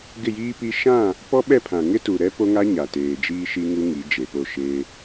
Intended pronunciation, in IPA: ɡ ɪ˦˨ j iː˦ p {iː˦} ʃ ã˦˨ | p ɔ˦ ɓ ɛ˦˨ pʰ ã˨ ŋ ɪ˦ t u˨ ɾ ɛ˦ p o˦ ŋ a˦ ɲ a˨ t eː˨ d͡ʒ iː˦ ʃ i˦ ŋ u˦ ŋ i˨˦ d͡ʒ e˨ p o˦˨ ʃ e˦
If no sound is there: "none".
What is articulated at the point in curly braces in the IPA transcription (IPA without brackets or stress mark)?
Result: i˦